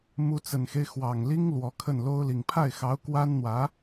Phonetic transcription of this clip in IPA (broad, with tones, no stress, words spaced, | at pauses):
mu˧˥t͡sə˨˩nxe˦ɪ̯ xwɑ˨˩ŋli˥ŋ lwɔ˧˥kʰə˥˩n lo˥ʊ̯li˨˩ŋ pʰa˥˩ɪ̯xɑ˧˥ʊ̯ kwa˥nn̪wä˧˥